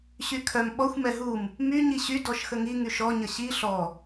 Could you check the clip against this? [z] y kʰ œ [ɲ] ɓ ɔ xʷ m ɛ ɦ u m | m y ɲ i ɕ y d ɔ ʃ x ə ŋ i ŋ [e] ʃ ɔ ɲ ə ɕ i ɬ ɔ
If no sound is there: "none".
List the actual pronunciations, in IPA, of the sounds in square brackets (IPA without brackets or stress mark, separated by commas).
ɕ, m, y